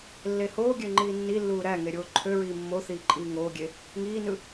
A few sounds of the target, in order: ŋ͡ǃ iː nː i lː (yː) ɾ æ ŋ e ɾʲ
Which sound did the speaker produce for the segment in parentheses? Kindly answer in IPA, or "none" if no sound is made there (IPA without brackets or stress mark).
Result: uː